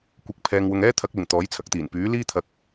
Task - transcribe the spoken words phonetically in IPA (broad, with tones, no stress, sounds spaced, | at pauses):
kʷ ɪ˨˥ k̚ pʰ ɛː˨ ŋ w ʊ˨ ŋ ɛː˥ t̪ʰ ɐ˨˥ k̚ l ɪ˨˩ ŋ t̪ ɔː˨˥ j t͡sʰ ɐ˨˥ k̚ t̪ iː˨˩ n p yː˨˥ l iː˥ t̪ʰ ɐ˧ k̚